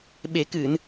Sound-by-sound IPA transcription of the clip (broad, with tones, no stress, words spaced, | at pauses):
ɓe˨˩˦kɨ˨˩˨n